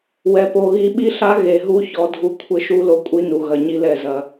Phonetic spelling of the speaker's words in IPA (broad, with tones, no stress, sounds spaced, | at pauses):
w ɛ˨ p o˨ ɣ i˦ ɓ i˦ ɬ a˦ ɣ e˨ ɦ u˦ ç ɔ˦ dʱ u˦ kʷʰ ɘ˦ ʃ u˦ l o˦ kʷʼ i˦ n u˨ ɣ ɐ˨ ɲ i˦ l ɛ˦˨ z ɐ˦